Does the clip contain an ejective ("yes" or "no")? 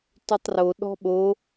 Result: no